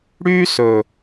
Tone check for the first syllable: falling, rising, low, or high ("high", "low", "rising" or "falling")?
high